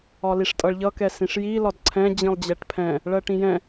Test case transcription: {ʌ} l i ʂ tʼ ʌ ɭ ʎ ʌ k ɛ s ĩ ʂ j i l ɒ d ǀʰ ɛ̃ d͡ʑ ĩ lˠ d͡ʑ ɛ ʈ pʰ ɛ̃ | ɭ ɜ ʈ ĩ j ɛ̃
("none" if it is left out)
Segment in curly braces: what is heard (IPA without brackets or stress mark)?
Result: ɒ